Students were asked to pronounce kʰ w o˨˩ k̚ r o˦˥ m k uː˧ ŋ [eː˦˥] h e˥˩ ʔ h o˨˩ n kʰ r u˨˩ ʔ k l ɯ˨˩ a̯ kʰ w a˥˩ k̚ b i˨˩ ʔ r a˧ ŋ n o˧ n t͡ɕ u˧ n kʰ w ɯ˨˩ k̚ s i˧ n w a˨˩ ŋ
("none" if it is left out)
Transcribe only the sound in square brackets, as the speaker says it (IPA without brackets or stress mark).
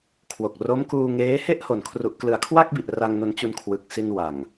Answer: eː˦˥